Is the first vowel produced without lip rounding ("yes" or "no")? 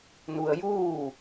no